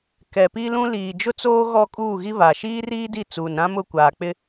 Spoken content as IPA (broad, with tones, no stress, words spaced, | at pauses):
kɛ˨pi˦lũ˦ liː˨d͡ʒʊ˦t͡soː˦ ɣɔ˦ kʼuː˦˨ɣi˦βa˨ ʃiː˦riː˦di˦˨ t͡suː˨nɾã˦mʊ˦˨ kʷaː˨ k͡pɪ˦